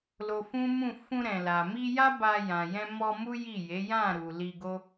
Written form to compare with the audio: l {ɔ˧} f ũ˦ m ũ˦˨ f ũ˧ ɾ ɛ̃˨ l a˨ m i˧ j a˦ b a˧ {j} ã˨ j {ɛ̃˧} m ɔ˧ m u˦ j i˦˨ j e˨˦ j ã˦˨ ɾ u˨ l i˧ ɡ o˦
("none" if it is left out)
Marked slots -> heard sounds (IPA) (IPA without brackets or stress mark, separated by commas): o˧, j, ɛ̃˧